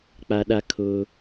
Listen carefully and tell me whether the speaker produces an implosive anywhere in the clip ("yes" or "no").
yes